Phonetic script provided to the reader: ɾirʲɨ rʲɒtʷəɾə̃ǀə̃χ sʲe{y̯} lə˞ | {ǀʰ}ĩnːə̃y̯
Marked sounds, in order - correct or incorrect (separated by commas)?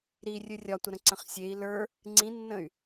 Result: incorrect, incorrect